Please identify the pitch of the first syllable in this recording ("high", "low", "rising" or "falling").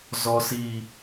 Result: low